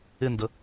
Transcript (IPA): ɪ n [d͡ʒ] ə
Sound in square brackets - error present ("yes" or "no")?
yes